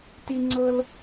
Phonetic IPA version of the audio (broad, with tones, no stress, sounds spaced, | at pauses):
t i˥ ŋ͡ǀ ɤ˥ l